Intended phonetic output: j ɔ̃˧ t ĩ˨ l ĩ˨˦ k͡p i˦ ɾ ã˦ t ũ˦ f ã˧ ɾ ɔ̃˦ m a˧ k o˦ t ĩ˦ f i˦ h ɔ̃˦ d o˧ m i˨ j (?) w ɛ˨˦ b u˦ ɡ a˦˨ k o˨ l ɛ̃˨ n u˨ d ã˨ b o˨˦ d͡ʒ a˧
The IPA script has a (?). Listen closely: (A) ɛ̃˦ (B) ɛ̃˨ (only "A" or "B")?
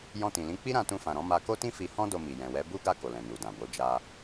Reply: B